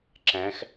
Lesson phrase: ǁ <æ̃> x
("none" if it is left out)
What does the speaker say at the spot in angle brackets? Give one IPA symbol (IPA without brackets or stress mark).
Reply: æ̃